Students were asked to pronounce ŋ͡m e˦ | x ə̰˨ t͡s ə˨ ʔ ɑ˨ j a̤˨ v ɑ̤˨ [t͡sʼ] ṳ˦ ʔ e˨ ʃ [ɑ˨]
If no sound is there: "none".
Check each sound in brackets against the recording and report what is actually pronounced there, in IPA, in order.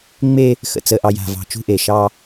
t͡ʃ, ɑ˦

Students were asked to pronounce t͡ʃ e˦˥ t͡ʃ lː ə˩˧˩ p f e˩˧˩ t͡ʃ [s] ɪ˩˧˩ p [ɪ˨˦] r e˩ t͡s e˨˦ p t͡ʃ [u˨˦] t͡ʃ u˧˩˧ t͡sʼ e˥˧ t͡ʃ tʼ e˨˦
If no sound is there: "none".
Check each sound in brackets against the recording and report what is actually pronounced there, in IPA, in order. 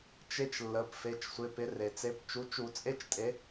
sʷ, ɪ˨˦, u˨˦

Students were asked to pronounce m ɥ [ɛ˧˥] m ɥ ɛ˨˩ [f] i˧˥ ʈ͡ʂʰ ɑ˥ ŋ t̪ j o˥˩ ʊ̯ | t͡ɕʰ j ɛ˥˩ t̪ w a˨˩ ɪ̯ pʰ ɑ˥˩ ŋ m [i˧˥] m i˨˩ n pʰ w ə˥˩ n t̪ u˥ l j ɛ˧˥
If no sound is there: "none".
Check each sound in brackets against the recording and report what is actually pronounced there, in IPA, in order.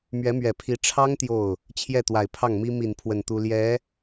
ɛ˧˥, pʰ, i˥

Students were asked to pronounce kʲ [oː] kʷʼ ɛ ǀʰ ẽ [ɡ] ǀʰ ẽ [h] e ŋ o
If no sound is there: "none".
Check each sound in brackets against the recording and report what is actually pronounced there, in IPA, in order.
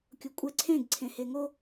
o, ɡ, h

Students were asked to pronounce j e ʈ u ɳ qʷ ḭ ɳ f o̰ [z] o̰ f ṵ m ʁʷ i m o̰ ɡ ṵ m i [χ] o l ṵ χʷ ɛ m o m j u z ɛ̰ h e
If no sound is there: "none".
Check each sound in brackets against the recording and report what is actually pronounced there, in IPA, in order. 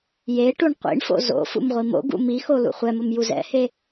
z, x

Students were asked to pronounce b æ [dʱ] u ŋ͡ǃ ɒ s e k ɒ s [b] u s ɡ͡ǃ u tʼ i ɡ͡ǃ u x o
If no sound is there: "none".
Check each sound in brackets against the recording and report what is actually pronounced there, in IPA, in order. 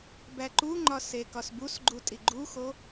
ǃ, b

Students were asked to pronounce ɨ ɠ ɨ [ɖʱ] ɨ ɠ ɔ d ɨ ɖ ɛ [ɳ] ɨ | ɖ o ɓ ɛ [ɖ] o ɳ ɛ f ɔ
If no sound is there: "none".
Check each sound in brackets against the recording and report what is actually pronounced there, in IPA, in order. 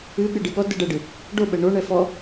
ɖ, ɖ, ɳ

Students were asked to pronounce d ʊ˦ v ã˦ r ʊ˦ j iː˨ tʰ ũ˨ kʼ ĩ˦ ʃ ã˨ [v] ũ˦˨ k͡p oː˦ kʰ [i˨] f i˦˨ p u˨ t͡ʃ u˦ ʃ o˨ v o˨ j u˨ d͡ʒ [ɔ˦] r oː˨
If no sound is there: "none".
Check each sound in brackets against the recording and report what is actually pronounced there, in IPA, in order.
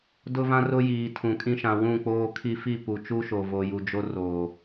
w, i˦, o˦

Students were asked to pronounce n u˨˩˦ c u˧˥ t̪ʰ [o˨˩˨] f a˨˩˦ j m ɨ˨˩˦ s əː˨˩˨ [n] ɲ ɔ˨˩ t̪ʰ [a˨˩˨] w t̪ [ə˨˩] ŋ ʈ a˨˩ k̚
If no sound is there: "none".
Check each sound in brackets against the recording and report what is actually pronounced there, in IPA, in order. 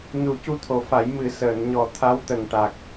o˨˩˨, n, a˧˥, ə˨˩

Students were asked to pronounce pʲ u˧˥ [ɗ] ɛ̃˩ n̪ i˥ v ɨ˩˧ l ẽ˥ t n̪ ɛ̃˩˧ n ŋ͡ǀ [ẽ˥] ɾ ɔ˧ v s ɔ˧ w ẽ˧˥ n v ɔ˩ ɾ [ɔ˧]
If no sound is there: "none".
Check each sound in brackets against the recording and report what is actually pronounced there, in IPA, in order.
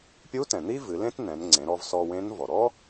t, ẽ˩˧, ɔ˥

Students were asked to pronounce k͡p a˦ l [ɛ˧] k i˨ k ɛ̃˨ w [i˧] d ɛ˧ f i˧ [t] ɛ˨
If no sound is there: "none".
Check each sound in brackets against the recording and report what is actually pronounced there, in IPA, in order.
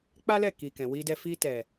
ɛ˦˨, i˧, t

